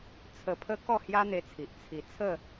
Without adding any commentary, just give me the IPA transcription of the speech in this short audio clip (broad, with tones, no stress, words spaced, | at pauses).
t͡sʰə˧pʰə˦ kɔ˥˧hja˦n̪e˧t͡sʰi˨ʔ t͡sʰi˧ t͡sʰə˥˧